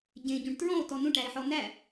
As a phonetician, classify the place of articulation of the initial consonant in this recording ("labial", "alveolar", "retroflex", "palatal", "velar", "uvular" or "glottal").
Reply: palatal